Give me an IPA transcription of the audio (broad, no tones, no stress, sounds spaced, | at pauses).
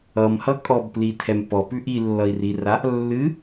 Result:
ʌ m h ʌ kʼ ɔ b p l i tʰ ɛ m p ɔ p ʉ ʔ i lː ʌ i̯ r i r a | lː ɨ